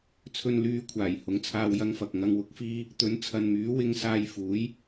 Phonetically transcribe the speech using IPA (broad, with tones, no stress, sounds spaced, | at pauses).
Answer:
t͡sʰ ɵ˨ n l yː˨ kʷʰ aː˨˩ j h ʊ˨˥ ŋ t͡sʰ aː˧ w j ɐ˧ ŋ f ɐ˨ k̚ ŋ ɐ˨ ŋ w ʊ˨˥ k̚ f iː˧ | t̪ ɵ˨˥ n t͡sʰ ɐ˨ n m yː˨˥ w ɪ˧ ŋ s aː˧ j f uː˨˥ j